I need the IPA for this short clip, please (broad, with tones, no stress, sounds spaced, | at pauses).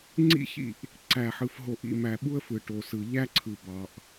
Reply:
ŋ͡ǀ ḭ˦ ç ḭ˦˨ ʔ | ǀ æ˨ ħ ɯ˨ f ɦ o˨ ʔ ḭ˨ m æ˨ ɓ u˦ ə̯ f ɯ˨ ʈ o˨ s ɯ˨ ʎ æ˦ ǀʰ ɯ˨ b ɑ˨ ʔ